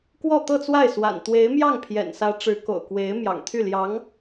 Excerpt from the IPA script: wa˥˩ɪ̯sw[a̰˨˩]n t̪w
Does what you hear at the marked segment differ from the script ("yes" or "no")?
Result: no